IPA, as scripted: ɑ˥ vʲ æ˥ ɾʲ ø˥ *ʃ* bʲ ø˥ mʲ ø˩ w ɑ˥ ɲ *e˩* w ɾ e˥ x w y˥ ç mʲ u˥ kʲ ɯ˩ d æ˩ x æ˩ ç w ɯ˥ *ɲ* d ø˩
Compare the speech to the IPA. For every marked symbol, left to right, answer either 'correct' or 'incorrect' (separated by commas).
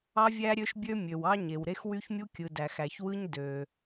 correct, correct, correct